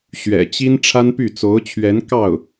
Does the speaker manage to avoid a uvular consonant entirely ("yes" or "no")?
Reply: yes